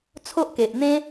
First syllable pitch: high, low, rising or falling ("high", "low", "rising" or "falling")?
high